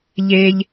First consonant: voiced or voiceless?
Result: voiced